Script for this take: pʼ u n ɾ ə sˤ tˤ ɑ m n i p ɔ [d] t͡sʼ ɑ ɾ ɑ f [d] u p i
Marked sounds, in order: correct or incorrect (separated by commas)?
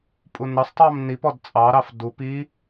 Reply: correct, correct